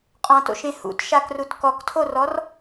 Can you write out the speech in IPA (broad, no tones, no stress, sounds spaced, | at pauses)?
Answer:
qʼ ɔ̃ t o̰ ʃ ẽ h ṵ t ʃ a k r u t k ɔ k tʰ o r ɔ r